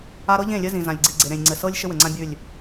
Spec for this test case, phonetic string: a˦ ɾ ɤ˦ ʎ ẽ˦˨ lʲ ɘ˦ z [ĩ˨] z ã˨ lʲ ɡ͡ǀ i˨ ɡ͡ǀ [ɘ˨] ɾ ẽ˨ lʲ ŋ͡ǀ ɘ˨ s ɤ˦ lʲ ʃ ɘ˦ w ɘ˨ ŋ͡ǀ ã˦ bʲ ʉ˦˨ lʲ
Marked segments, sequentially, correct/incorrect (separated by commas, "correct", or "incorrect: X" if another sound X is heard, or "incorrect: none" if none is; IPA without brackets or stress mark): correct, incorrect: e˨